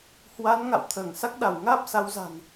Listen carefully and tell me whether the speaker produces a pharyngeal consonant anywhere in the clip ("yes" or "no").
no